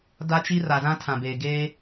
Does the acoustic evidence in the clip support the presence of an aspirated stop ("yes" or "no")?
yes